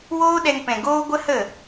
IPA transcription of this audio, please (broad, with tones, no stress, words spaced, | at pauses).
woː˦ɗɛ˧ŋpɛ̃˨ ɡoː˦ɡʷə˦hə˦˨